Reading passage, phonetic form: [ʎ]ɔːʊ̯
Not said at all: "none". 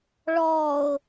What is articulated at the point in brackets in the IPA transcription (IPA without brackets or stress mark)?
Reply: ɭ